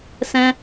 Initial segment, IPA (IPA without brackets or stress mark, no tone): s